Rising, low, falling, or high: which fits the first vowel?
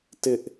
high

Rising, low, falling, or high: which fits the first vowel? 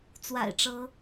low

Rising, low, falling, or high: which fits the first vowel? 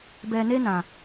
low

